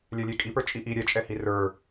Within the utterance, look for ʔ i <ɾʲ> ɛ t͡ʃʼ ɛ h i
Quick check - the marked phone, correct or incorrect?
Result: correct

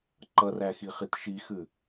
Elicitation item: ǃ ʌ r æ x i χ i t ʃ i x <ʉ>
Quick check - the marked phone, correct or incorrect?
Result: correct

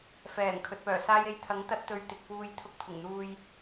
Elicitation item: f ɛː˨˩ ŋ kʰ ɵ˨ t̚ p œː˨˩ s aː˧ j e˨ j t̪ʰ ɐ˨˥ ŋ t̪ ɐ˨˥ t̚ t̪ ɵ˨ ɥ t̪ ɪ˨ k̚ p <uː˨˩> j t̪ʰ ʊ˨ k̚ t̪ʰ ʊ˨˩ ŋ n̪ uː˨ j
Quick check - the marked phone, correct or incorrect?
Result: incorrect: uː˧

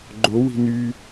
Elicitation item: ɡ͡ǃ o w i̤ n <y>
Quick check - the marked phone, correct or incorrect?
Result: correct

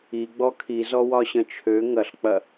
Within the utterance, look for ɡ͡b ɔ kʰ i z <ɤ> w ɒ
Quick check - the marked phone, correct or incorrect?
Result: incorrect: ɔ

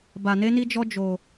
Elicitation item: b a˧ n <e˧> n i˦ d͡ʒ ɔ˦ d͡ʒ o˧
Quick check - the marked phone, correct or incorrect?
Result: incorrect: e˦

